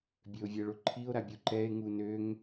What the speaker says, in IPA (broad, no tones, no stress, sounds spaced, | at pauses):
bʲ ø o̯ vʲ ɛ ɭ o ǃʰ i o̯ ɾ a bʲ u ǃ ɛ e̯ ŋ u n ø ŋ